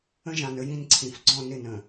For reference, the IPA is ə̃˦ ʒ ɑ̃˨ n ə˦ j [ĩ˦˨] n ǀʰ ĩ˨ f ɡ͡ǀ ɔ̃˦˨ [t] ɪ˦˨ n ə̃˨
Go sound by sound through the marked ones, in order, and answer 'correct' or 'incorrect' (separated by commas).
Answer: correct, incorrect